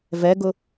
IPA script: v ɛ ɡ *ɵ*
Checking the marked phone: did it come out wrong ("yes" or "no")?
yes